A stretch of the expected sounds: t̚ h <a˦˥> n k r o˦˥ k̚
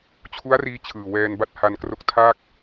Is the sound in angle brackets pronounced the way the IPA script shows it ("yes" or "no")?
no